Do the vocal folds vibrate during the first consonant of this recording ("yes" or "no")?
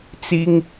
no